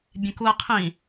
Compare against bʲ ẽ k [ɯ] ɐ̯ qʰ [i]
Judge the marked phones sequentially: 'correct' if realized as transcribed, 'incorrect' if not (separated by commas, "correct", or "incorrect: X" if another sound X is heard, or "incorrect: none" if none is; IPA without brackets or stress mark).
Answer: incorrect: u, incorrect: ĩ